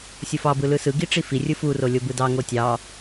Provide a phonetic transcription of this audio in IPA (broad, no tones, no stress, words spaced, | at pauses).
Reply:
sʲofɑ bɯlɯsɯ ɡiʈ͡ʂifi rʲɯfu rolʲobɯdɑ ŋotʲɑ